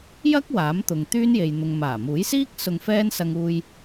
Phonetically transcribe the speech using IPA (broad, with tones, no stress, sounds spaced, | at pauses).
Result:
j ɐ˥ k̚ w aː˨˥ m t̪ ʊ˨ ŋ t̪ yː˥ n j e˨ j n̪ ʊ˨ ŋ m aː˨˩ m uː˨˥ j s iː˥ k̚ s ʊ˧ ŋ f ɛː˥ n s ɐ˧ ŋ uː˧ j